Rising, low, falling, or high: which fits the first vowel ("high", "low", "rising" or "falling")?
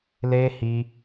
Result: high